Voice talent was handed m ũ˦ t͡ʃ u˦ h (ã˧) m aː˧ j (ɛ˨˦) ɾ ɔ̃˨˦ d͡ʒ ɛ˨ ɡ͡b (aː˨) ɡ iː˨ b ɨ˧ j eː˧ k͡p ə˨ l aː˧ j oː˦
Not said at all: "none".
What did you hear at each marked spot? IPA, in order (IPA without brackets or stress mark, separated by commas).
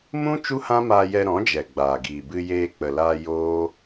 ã˦, ɛ˧, aː˨